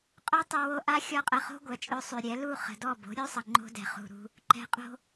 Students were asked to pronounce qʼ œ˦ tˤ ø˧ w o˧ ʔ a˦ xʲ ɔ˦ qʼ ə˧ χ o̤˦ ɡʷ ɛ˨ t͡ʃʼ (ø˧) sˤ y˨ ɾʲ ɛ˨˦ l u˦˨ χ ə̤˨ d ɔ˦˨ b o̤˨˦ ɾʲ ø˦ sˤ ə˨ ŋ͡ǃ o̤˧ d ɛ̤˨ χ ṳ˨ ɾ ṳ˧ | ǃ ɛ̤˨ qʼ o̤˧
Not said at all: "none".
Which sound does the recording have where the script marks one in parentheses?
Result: ø˧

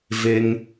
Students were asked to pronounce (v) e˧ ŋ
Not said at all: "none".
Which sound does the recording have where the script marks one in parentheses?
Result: v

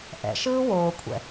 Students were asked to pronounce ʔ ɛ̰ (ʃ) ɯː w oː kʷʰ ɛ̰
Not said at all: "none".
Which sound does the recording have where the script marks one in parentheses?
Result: ʃ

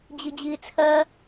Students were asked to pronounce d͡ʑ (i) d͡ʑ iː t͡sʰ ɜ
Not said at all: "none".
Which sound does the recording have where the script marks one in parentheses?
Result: i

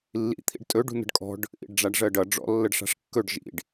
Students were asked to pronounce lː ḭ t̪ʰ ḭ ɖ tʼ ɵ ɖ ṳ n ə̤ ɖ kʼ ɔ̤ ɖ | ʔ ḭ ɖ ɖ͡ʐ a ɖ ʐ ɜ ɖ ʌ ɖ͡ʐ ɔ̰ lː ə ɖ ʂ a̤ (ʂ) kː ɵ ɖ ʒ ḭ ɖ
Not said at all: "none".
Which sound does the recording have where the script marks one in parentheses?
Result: ʂ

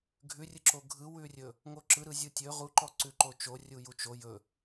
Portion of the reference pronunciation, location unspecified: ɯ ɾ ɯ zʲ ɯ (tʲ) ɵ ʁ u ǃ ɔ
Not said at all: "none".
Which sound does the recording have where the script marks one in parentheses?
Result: tʲ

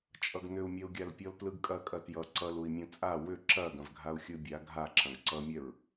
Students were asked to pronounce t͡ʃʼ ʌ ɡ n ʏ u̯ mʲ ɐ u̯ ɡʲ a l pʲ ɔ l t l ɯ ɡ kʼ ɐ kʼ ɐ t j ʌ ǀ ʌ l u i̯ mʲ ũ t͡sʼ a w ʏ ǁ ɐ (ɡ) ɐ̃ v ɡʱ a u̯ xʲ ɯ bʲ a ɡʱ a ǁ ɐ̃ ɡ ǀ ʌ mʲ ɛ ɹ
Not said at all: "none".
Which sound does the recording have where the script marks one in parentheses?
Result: ɡ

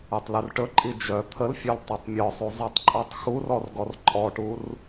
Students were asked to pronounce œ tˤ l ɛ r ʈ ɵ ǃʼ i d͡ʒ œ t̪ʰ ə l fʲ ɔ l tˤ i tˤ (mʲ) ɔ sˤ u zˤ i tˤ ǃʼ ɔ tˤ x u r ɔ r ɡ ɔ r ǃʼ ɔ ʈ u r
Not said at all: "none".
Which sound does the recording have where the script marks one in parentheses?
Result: mʲ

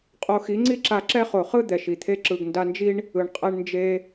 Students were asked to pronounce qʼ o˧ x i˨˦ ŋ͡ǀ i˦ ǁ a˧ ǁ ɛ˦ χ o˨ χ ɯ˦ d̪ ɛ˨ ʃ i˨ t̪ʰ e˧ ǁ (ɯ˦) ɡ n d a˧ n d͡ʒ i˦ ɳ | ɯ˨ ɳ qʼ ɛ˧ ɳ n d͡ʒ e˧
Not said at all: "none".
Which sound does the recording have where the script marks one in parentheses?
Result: ɯ˨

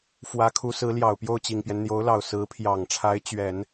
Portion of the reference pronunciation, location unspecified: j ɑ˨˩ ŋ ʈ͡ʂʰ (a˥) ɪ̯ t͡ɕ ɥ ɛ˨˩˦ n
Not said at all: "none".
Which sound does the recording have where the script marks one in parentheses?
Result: a˧˥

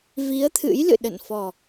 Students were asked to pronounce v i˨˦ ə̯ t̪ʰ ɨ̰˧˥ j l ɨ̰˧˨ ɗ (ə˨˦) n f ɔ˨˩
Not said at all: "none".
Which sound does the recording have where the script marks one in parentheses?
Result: ə̰˧˨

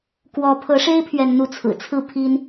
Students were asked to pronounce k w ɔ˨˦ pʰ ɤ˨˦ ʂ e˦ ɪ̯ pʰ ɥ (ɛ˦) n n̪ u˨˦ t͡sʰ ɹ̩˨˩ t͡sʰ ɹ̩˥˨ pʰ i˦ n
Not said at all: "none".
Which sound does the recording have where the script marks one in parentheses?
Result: ɛ˨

